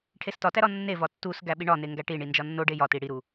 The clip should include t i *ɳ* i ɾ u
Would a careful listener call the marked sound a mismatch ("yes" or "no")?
yes